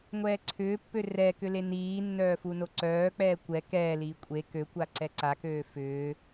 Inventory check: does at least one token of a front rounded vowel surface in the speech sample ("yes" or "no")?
yes